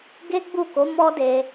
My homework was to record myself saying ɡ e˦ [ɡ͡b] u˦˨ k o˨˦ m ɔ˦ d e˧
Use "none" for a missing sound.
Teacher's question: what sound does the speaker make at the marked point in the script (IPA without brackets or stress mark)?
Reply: ɡ͡b